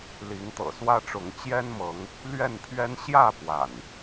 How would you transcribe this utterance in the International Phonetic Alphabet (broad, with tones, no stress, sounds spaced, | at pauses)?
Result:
l i˨˦ ŋ t̪ ɤ̰˨˩ s w ä˦ ʈ͡ʂ ʊ˨˦ ŋ t͡ɕ j ɛ˦ n m ɤ˨˦ ŋ | l ɥ ɛ˥˨ n pʰ ɥ ɛ˦ n ɕ j ä˥˨ p w a̰˨˩ n